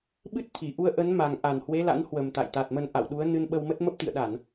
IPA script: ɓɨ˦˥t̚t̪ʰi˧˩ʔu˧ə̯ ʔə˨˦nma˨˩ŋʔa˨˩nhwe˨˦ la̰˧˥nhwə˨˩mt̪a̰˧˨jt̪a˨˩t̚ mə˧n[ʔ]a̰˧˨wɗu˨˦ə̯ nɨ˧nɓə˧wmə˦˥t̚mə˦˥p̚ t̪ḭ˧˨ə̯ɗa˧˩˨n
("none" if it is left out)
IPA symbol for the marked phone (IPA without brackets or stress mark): ʔ